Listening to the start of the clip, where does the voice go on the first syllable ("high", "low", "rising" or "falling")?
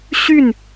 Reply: falling